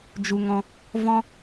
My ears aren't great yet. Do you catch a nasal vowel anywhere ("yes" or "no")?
yes